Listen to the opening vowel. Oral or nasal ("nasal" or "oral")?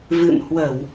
oral